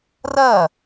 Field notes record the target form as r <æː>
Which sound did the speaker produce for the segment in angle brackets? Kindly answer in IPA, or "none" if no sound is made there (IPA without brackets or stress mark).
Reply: ɐː